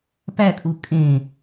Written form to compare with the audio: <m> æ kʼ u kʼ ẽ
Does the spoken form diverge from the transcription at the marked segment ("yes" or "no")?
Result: yes